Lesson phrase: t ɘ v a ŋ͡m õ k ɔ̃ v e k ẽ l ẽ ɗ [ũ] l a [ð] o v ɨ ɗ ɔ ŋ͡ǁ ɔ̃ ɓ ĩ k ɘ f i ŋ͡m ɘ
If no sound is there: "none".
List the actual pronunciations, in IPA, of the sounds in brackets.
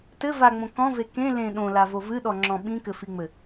õ, v

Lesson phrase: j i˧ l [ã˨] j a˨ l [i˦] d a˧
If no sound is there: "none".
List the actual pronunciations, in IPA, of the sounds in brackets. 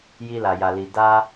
a˨, i˨

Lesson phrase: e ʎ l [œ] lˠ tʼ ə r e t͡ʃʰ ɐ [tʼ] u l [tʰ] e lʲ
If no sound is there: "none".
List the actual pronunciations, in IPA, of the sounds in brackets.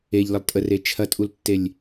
ə, tʼ, tː

